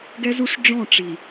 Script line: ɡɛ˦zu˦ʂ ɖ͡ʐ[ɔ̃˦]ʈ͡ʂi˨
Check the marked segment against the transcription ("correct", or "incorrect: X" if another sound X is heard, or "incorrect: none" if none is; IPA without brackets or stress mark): incorrect: ɔ̃˦˨